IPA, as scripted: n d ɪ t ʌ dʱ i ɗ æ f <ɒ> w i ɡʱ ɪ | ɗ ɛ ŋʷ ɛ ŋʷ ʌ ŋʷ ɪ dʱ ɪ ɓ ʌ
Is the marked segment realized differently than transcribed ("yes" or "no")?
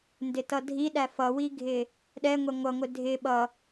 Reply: yes